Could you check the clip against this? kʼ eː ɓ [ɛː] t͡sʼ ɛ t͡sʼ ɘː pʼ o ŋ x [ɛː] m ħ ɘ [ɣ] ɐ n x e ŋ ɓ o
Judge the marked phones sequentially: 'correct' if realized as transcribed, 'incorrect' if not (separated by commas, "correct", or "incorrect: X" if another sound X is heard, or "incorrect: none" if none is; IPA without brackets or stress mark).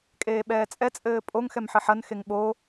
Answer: correct, incorrect: ɛ, incorrect: ħ